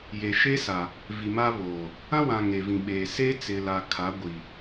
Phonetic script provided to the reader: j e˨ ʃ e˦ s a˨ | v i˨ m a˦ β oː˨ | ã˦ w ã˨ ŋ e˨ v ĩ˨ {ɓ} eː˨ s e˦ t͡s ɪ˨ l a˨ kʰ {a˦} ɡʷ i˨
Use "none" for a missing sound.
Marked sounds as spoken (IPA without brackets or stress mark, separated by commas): ɓ, a˨˦